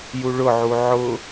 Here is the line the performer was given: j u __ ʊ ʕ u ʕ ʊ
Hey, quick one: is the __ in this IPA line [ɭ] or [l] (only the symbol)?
ɭ